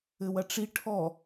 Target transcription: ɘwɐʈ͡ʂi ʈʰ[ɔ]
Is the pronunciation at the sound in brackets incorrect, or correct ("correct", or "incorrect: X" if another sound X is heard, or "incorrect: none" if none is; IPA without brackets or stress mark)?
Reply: correct